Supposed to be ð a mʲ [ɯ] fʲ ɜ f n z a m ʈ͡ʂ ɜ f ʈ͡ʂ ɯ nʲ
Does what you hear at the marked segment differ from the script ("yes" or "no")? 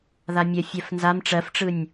yes